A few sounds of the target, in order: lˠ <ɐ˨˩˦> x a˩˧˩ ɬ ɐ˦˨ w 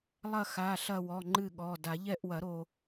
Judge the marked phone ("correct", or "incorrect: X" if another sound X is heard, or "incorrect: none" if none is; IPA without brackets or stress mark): incorrect: ɐ˦˨